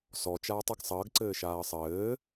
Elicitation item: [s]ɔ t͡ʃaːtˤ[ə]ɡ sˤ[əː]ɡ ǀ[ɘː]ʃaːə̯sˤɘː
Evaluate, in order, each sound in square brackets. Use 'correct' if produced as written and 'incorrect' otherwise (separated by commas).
correct, correct, correct, correct